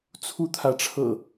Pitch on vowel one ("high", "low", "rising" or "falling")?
high